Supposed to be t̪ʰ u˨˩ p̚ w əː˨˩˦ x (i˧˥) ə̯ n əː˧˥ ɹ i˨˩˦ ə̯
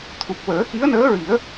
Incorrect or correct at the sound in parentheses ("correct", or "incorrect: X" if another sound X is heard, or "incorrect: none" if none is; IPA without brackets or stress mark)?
correct